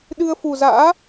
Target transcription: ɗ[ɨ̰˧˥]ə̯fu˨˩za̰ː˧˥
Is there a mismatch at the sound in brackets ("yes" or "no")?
yes